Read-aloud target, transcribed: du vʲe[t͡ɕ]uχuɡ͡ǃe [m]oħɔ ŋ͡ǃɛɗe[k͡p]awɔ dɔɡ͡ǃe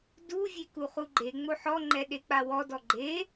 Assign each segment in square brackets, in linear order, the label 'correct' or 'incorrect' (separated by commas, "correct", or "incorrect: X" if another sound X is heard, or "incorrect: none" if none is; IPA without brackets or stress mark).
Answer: incorrect: k, incorrect: ŋ͡m, correct